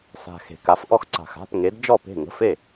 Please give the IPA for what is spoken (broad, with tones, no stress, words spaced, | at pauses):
sa̤˨˩ xe̤˨˩ ka˩˥fʔɔ˥˩x ǀa̤˨˩xa̤˧˥˧pŋe˩˥d d͡ʒɔ˥˩pe̤˥˩ŋə̤˧˥˧fe˥˩